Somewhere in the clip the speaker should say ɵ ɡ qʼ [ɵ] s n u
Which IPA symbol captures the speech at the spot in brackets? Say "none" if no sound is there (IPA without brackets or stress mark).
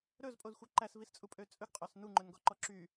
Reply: œ